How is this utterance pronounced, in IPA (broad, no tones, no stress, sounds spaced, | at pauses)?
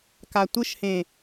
k a tʷ ɯ ʃ h ẽ